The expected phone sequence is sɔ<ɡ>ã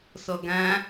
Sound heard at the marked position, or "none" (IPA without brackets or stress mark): ɡ